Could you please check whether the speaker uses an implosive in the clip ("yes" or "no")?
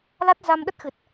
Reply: yes